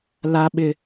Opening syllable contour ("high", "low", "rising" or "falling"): high